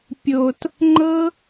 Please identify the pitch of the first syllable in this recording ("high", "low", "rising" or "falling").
low